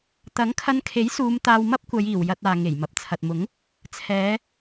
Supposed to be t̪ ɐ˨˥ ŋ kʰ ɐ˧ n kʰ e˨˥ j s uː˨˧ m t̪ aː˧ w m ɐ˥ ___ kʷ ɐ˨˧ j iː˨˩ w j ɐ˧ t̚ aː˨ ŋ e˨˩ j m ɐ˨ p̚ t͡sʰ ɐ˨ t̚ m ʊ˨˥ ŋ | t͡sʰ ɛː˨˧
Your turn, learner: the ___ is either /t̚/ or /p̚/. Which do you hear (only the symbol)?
p̚